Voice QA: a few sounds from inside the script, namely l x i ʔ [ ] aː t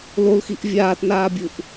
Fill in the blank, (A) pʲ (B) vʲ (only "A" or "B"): B